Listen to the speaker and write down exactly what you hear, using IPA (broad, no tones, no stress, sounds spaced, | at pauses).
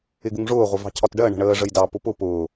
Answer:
ɪ ɡ u ŋ ʐ ʊː ʁʷ ə v ɑ̤ cʰ ɒ t ɖ ɜ ɳ ə̤ ɳ əː ʐ ə j d ɑ p ʊ p ʊ p ʊː